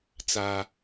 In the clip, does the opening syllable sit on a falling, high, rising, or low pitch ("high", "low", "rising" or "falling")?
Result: high